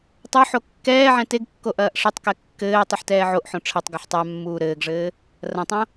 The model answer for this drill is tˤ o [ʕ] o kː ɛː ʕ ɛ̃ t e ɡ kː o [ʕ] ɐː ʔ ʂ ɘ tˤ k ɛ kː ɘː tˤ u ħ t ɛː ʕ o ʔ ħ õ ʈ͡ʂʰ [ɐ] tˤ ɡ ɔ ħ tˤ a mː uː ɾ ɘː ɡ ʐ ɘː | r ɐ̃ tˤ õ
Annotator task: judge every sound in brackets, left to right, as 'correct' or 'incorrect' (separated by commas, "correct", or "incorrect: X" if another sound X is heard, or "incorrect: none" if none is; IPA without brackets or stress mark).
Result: incorrect: ħ, incorrect: ʔ, correct